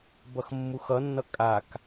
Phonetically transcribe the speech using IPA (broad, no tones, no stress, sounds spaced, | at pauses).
b ʌ x mː u x ʌ nː ʌ kʼ a k